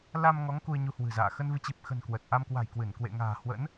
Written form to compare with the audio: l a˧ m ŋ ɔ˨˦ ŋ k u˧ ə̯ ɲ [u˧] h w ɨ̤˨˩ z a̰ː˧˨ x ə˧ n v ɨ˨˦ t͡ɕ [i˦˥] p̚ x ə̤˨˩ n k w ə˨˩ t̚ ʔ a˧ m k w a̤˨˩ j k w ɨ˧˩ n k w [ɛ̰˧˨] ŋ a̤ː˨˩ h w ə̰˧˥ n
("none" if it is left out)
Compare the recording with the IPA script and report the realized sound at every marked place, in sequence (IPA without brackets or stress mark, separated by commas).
u˧, i˨˩, ḛ˧˨